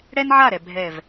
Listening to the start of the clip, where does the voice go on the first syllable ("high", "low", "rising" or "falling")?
high